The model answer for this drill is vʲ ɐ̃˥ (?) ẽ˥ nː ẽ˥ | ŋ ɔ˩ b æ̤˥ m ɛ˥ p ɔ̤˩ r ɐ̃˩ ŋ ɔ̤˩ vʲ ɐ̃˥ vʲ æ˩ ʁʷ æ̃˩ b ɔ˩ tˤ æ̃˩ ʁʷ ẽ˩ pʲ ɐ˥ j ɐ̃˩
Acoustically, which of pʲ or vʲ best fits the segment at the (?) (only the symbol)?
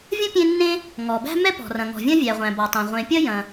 pʲ